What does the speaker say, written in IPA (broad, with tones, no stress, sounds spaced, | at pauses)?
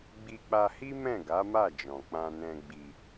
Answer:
ɡ͡b i˧ k͡p a˧ h i˦ m ɛ̃˦˨ ɡ a˨˦ m a˦˨ d͡ʒ ɔ̃˨ k͡p ã˧ n ɛ̃˧ ɡ͡b i˧